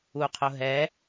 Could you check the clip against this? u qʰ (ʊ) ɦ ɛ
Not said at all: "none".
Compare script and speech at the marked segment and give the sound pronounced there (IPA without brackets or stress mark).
ʊ